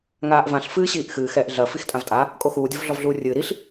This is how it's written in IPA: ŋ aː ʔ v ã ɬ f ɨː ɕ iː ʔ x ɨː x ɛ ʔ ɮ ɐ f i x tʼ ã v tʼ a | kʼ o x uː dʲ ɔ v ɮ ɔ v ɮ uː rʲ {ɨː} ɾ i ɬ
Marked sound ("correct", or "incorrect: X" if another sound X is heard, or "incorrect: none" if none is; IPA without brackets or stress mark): correct